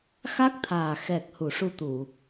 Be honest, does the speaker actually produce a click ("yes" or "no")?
no